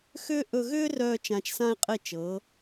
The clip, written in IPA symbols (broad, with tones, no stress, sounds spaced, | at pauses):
x ʏː˥ ʔ ɵ˧ ɣ ʏː˥ r œː˧ t͡ʃ ã˧ t͡ʃ s ã˥ e̯ qʼ e˥˩ t͡ʃ ɤː˩˥